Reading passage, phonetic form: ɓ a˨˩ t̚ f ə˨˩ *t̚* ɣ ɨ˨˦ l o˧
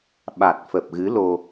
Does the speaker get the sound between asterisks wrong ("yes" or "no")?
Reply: yes